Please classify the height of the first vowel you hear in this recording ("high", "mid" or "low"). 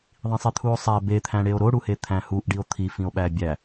high